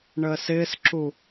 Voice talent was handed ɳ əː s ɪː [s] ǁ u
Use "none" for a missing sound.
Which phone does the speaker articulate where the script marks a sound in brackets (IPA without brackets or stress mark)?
s